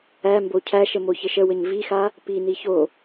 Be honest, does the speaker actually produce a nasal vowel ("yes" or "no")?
no